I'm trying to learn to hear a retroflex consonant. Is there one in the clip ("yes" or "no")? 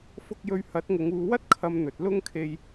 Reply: no